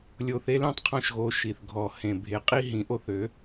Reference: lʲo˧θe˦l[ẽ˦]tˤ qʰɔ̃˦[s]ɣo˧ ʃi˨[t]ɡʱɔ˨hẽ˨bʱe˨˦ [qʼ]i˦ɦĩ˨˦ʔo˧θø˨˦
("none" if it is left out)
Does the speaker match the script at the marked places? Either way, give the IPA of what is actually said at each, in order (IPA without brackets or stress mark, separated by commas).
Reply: ẽ˦, ʃ, θ, qʼ